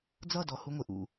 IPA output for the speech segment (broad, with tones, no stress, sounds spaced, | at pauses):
d͡z ʌ˦˨ d ɔ˨ h u˧ ŋʷ ɪ˨ ʔ ṵ˨